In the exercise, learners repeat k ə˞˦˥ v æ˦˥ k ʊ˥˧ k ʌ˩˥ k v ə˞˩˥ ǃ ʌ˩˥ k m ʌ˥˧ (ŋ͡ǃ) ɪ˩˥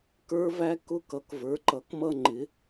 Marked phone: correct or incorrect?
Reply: correct